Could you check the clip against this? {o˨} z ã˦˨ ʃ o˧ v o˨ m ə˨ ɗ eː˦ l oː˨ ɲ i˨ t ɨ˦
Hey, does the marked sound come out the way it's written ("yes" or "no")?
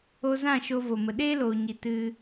no